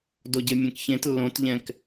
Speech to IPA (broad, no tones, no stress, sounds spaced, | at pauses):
d o ɟ e mʲ ɛ̃ k ç ẽ t lː õ t ʎ ɛ̃ k